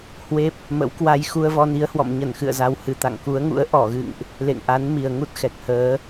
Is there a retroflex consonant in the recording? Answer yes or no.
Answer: no